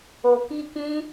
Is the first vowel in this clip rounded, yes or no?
yes